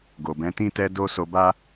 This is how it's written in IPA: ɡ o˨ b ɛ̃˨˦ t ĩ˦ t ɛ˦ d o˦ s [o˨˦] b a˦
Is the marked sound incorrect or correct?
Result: incorrect